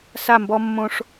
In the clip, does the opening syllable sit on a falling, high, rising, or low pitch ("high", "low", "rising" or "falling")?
falling